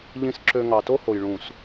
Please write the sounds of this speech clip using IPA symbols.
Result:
ʎ ĩ˨ s ǁ ø˨ ŋ ɑ˨ t o˦ h o˨ j ɭ ũ˨ s

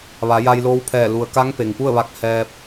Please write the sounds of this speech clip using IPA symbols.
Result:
ʋ a˩˧ j a˧ j l oː˧˥ w pʰ ɛː˧˩ l u˩ ə̯ k a˧˥ ŋ p e˩ ŋ p u˥˨ ə̯ ʋ a˧ k̚ h ɛː˧ p̚

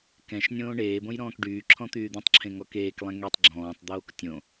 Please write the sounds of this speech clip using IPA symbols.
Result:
k ɛ̃ ʃ nʲ õː ɳ eː b õ j ɾ ɔ̃ː k ɖ yː ǁʰ ɔ̃ t̪ yː d̪ ẽ tˤ ǁʰ ẽ ŋ ɔ k eː k lˠ ɛ̃ ŋ e tˤ ɡ͡ǁ ɔ̃ː tˤ d̪ oː k tʲ õ

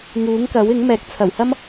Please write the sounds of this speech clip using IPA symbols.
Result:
ŋ uː˨˥ ŋ k ɐ˨˥ w ɪ˨˥ ŋ m ɛː˨˥ k̚ t͡sʰ ɐ˨˩ w h ɐ˥ m

